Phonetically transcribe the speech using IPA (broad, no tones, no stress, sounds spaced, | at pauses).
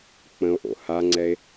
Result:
k͡p ə̃ o̯ ʔ o̰ h a ŋ͡ǀ ɛ e̯